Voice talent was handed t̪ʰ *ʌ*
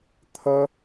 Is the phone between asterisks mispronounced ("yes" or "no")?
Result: no